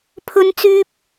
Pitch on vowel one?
high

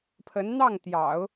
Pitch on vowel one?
rising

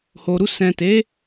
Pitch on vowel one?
low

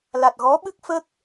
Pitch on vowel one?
low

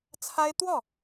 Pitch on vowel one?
high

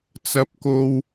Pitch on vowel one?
low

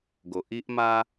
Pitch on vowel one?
low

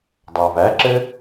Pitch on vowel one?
low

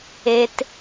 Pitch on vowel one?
high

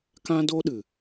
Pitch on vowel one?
high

